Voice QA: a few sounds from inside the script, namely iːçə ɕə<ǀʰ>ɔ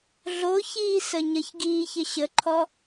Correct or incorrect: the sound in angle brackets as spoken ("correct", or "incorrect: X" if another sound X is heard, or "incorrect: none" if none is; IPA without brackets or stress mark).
incorrect: ǃʰ